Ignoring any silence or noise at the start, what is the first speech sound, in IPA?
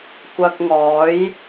kʷ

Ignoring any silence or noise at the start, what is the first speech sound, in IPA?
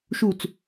ʃ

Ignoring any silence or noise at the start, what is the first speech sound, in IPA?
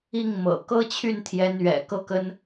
i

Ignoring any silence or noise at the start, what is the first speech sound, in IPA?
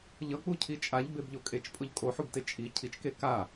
ʎ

